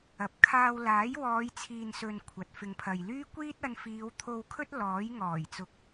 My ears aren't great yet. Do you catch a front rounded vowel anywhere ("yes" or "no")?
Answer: yes